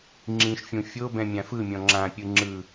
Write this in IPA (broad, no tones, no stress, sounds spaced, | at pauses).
ŋ͡ǁ ĩ ʃ fʲ ũ fʲ o b ɛ̃ mʲ ã f ɯ mʲ ɔ̃ ŋ͡ǁ ã pʲ ɯ ŋ͡ǁ ɯ